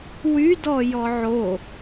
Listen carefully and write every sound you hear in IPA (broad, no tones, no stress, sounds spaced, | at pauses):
w y d ɔ j ɔ ʕ o